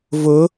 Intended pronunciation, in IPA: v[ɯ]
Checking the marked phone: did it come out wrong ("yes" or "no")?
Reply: yes